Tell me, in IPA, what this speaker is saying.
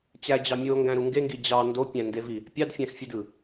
t͡ɕ æ d͡ʑ ɑ mʲ o ŋ ɡ æ̃ ɾ u ŋ ɡ e ŋ ɡ i d͡ʑ ɑ n d o pʲ æ̃ n d e v i | pʲ ɑ d fʲ æ̃ x fʲ e d ɯ

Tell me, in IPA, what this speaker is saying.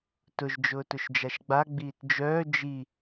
t ʊ ʒ d͡ʒ ʊː t ʊ ʃ d͡ʒ a ʃ ɡ͡b a ɡ͡b iː t d͡ʒ œː d͡ʒ i

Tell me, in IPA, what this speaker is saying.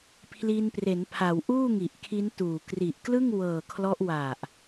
pʰ l i˧ n p r e˩˦ n pʰ a˩˦ w ʔ uː˥˩ ŋ i˨˩ ʔ kʰ i˦˥ n t uː˨˩ k r i˨˩ ʔ k l ɯ˥˩ ŋ w ɤː˨˩ kʰ l ɔ˦˥ ʔ w a˨˩ ʔ

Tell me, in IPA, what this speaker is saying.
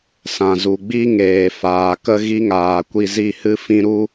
s ã˨ z u˨ ɡ͡b i˦ ŋ eː˨ f aː˨ k ə˦ ɣ i˦ ŋ aː˨ kʷ i˧ z i˦˨ h ɨ˦ f ĩ˦ ɾ u˦

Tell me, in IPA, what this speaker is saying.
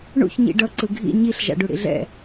ɳ ṵ ç ɲ ḭ ɖ ʌ ǀ ɯ ɡʱ ḭ ɲ i ɬ ʒ a̰ ɖ u ɽ ḭ ɮ ɛ̰

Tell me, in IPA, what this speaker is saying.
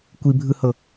kʷ i bʱ ɯ h ɤ

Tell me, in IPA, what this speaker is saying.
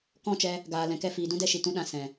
k ɔ̃˦˨ t͡ʃ ɛ˧ | ɡ aː˨ l ɛ̃˨ k ɛ˧ f iː˨ d ũ˦ d ɛ˦ ʃ i˨ t ũ˦ ɗ ã˧ s ɛ̃˨

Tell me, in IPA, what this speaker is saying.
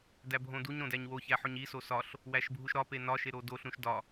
d æ bʱ õ d u ɲ ɾ õ d æ ɲ w o ç æ ħ o ɲ i s o s ɒ ɬ | w æ ʃ bʱ u ʃ ɾ ɒ p e n ɒ ʃ e ɾ o d o ɬ ɾ ũ ʃ d ɒ

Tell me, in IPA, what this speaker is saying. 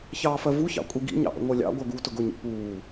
ç ɑː f ɜ v u ç ɑ̰ kʷʼ i ɡ ḭ ɲ ɑ̰ ʔ ə̰ ŋʷ əː lʲ ɑ̰ ɡʷ ɜ ɡ uː t ʊ ɡ ʊ ɲ ḭ p uː

